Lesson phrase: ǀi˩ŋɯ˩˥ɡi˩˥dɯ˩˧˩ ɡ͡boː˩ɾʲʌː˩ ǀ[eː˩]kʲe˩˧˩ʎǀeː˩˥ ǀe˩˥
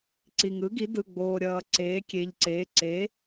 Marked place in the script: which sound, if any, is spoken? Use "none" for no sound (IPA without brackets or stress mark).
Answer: eː˩˥